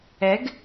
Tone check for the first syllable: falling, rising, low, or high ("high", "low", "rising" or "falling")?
rising